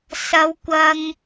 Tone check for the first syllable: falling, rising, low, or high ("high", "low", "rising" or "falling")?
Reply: high